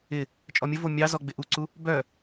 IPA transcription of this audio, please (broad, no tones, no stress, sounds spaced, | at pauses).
ɪ | t͡ʃʼ ɔ mʲ ə v o mʲ ɑ z ɔ ɡ͡b ɪ ʔ u ǀ u | b œ